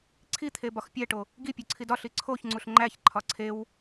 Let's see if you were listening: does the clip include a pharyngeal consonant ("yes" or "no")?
no